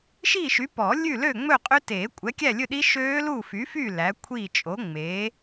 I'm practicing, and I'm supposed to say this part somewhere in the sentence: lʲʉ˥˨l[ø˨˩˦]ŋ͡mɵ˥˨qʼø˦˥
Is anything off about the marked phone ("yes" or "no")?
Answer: yes